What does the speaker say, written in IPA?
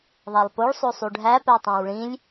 ðˤ æ lˠ p o ɭ sˤ o sˤ u ɖʱ æ p æ tˤ æ̃ w ɭ ĩ lʲ

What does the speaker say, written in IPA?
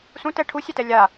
s ũ t ɛ ʈʰ u sʲ ɛ t ɛ lʲ a

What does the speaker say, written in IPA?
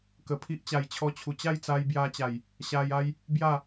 k ə˨˩ pʰ i˦ ʔ t͡ɕ a˨˩ j t͡ɕʰ ɔ˧ t͡ɕʰ u˨˩ t͡ɕ a˥˧ j t͡s a˧ j b j a˧ t͡ɕ a˨˩ j | ɕ a˧ j a˦ j | b j a˥˧

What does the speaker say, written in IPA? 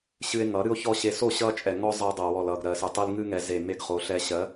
ɕ ɨ˧ e̯ ŋ ʌ˨˦ ɾ ɨ˦ o̯ ç ɔ˦ ɕ e˧ s o˦˨ ɕ ʌ˦ t͡ʃʼ ɛ˨ ŋ ɔ˦ zˤ ɛ˧ dˤ ɜ˨ w ɔ˨ l ʌ˨ ɡ ɾ ɜ˨ s ɨ˨ tˤ ɨ˧ l ŋ ɨ˦ ŋ ɛ˨ z e˨ m e˧ ɡ χ o˨˦ ɬ ɛ˧ ɕ ɜ˨˦

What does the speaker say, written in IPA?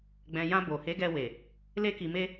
ɡ͡b ɛ̃˨ j ã˧ b o˨ h e˨˦ ɡ ɛ˧ w e˨ | l e˧ k i˨ m e˧

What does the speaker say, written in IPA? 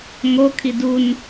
ŋ o kʰ i d u n

